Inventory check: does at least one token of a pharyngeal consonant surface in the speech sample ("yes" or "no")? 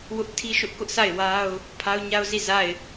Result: no